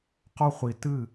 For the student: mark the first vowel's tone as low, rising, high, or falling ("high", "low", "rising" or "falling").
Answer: high